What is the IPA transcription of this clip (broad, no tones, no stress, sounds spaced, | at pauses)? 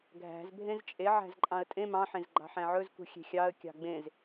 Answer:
ɡʱ æ̤ z bʱ ẽ z t͡ʃʼ e ʕ æ̤ z ǃʼ ɑ̃ ə̯ tʼ ẽ m ɑ̃ ħ ẽ z ɡ͡ǃ ɑ̤ ħ æ̃ ʕ ɵ z k ṳ xʲ e̤ xʲ ɑ ə̯ kʲ ɑ̤ ɡ͡b ẽ z